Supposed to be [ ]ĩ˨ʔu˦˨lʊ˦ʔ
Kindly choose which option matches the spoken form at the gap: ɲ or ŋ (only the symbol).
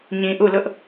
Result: ɲ